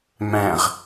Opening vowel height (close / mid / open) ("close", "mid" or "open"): open